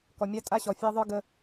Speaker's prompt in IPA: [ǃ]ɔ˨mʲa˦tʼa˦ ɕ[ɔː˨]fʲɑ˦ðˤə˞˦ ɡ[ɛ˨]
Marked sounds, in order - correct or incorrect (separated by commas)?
incorrect, incorrect, incorrect